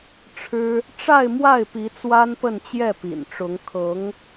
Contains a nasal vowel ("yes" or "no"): no